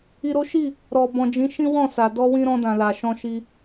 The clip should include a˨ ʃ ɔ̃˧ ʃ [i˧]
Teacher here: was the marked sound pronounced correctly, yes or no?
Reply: yes